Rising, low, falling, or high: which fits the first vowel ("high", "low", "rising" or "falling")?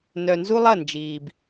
low